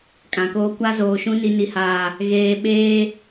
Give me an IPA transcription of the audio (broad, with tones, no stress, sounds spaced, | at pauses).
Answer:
kʼ ã˨ k oː˦ kʷ a˦ z oː˨ ʃ ũ˦ n i˨ n i˨ h aː˨ | ɣ eː˨ ɓ eː˦